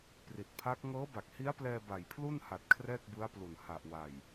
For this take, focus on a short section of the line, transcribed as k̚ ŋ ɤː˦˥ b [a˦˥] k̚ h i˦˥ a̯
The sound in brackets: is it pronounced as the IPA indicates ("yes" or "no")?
no